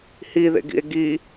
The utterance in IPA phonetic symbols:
h i ð ḛ ɡ ḭ e̯ ɡ i

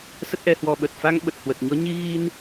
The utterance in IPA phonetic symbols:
s ə˦˥ t̚ ʔ ɛ˧ h w ɔ˧ ɓ ə˨˩ t̚ f a˧ ŋ ɓ ə˨˩ t̚ h w ə˨˩ t̚ ɲ ɔ˨˦ ɲ i˧ ɣ i˧ n

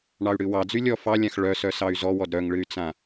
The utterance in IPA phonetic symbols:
ɳ ɑ y̯ ɽ ɨ w ɑ d͡z y lʲ ɔ f ɑ lʲ ã x ɭ œ s œ s ɑ y̯ z ɔ w ɔ d ɾ œ ŋ ɭ ɨ y̯ t͡s ã

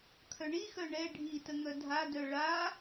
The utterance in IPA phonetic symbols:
kʰ œ ɳ i x œ ɳ ɛ ɖʱ i t ə ŋ œ dʱ a d œ ɭ a

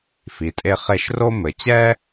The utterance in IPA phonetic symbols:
f i˩ tʼ e˦ χ e˦ ʃ r o˥ m ɘ˨ t͡ɕ ɛ˥

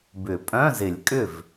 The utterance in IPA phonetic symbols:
b ʏ˨˩˦ pʼ œ̃˧˥˧ z ɪ˨˩˦ lʲ kʼ ʏ˥˩ v

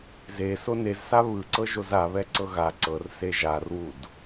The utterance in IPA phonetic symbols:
z e s o n e z s a β ɯ ǀ ɤ ʒ o z a β ɛ ǀ ɤ ɣ a ǀ ɤ r s e ʒ a r w u d

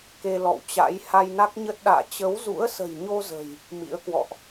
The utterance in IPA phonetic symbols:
k e˧ l ɔ̰˧˨ w t͡ɕ a̰˧˥ j h a˧ j n a˦˥ k̚ ɲ ə˦˥ t̚ ɗ a̰ː˧˨ t͡ɕ ə˨˦ w z ṵ˧˥ ə̯ s ə̤˨˩ j ɲ o˧ z ə̤˨˩ j | m ḭ˧˥ ə̯ k w ɔ̰˧˨ ʔ

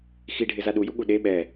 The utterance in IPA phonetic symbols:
x i ɖʱ ɪ z a ɗ u j u ɠ u ɗ e ɓ ɛ

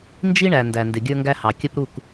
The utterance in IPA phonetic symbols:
n d͡ʒ i˦ ɳ æ˨ n d æ˨ n d ɪ˨ ɡʲ ə˞˦ ŋ ɡ æ˦ h ɑ˨ kʲ ə˦ p ɾ u˦˨ k

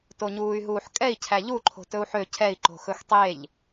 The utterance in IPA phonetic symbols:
t o ɲ uː y̯ ɦ uː ħ kʼ ɛ i̯ cʰ æ ʎ u ǃʰ o̤ t ɵ u̯ ħ ø cʰ ɛ i̯ ǃ o̤ x ɵ x tˤ e ʎ

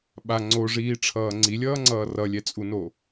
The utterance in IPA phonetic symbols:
ɓ a ŋ͡ǀ o ʐ iː ʈ͡ʂʰ ʌː ŋ͡ǀ i lʲ ʌː ŋ͡ǀ ʌː r ʌ lʲ ɛ t͡sʼ u n o

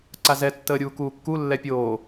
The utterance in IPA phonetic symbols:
ǀ a z ɛ tː əː ɾʲ uː k uː kː u lː ɛ pʲ oː

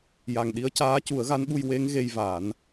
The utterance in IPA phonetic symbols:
j a˨˩ ŋ ɗ i˧˥ ə̯ c aː˧˥ c u˨˩˦ ə̯ ɣ a˧˥ n ɓ u˧ j w e˧˥ ŋ ɣ e˧ j v a˨˩˦ n

